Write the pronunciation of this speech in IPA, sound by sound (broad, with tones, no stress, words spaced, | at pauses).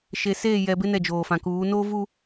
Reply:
ʃe˨seː˦˨ jɛ˨bɪ˦ nɛ˦˨d͡ʒoː˨fã˨kuː˨˦ noː˦ vu˦